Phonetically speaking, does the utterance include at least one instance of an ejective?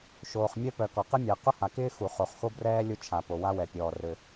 no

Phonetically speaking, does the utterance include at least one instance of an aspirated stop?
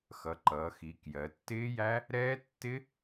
no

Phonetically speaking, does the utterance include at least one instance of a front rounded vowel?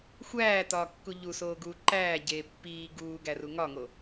no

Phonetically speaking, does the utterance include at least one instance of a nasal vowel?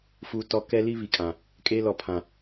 yes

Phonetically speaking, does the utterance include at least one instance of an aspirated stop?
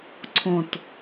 yes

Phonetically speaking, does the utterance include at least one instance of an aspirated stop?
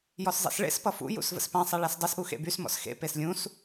no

